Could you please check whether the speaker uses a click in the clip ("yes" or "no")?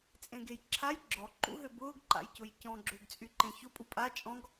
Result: yes